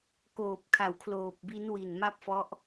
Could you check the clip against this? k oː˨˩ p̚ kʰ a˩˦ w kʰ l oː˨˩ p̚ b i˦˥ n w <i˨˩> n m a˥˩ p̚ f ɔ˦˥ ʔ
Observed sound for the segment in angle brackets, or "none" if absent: i˨˩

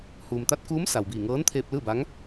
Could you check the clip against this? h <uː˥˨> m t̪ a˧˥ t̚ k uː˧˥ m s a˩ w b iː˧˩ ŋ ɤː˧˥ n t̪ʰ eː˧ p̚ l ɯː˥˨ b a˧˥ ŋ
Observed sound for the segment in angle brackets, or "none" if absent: uː˩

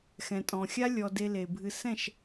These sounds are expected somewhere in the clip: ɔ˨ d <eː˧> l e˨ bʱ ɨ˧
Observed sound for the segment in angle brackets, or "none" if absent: e˧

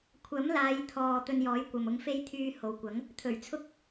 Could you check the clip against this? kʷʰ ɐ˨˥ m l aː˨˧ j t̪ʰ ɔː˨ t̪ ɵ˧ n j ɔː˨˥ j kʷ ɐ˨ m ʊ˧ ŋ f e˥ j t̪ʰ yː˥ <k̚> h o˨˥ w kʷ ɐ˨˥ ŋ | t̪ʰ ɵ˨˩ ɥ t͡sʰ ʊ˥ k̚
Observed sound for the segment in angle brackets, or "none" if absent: none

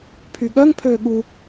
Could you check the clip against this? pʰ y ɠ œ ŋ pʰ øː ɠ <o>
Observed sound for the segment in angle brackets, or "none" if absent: u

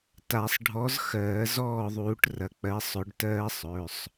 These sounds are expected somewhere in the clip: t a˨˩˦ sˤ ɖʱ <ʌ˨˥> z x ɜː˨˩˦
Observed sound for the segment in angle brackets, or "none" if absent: ɔ˨˥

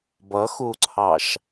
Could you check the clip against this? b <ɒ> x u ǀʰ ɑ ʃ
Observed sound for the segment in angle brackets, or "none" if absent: ʌ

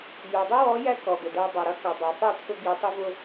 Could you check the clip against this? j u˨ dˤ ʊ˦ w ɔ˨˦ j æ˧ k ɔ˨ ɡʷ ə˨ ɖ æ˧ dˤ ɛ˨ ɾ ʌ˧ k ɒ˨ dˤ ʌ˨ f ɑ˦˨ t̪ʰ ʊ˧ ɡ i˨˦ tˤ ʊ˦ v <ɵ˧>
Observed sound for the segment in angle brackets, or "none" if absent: ʊ˧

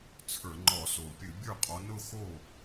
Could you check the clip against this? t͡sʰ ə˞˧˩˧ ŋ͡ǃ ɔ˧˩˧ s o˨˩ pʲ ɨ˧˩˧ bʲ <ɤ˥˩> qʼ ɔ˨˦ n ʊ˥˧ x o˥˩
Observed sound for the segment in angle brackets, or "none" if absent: ə˞˥˩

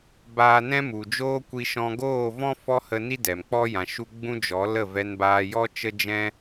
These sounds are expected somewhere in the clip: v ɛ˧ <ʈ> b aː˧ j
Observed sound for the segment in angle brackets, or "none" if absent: n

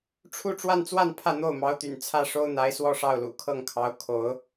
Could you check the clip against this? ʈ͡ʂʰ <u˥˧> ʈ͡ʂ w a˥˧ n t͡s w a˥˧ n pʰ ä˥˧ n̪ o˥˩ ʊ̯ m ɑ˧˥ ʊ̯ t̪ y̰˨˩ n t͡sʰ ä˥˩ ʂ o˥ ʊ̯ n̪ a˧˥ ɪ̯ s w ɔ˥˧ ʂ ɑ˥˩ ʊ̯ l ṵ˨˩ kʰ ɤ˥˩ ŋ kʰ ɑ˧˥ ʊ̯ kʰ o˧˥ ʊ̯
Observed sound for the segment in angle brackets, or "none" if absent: u˥˧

